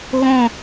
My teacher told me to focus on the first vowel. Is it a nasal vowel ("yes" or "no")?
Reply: yes